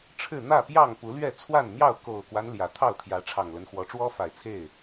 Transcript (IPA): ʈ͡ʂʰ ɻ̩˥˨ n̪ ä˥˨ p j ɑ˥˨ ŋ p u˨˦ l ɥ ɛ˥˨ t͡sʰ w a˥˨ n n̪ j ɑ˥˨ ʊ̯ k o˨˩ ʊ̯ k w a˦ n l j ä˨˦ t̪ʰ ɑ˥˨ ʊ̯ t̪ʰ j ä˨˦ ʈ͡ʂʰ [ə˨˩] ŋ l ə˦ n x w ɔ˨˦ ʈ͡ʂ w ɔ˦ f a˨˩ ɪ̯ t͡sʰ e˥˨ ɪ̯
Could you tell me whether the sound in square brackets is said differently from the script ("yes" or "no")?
yes